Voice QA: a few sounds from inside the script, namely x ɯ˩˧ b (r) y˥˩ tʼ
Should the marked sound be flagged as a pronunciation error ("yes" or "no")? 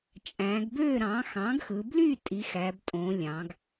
yes